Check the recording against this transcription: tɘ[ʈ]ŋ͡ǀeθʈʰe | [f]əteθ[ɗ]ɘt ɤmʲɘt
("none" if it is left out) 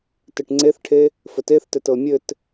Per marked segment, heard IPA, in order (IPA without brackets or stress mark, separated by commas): ʈ, f, t